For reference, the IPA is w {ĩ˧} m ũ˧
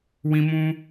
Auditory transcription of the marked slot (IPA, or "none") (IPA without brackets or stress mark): ĩ˧